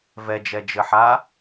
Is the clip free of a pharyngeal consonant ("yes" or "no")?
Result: no